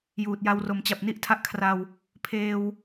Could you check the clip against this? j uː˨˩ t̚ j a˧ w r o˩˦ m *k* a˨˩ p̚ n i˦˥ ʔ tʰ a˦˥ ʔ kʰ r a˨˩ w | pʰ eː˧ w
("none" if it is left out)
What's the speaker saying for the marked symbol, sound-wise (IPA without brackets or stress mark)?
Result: t͡ɕ